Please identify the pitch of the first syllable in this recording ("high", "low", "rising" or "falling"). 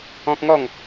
high